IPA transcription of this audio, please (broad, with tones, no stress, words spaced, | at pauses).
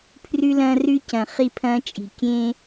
pʰrʉ˦lɐ̃ː˦rʉ˦ cɐ̃˨χi˦pʰɐ̃ː˦t͡ʃʼi̤˨ kʲẽ˦